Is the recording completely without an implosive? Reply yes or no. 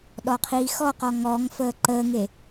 no